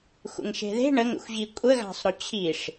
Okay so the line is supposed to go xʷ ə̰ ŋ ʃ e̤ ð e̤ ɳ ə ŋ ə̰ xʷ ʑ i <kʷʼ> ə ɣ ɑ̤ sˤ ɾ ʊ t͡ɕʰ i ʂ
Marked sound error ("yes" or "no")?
no